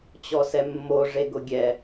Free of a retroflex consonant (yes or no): no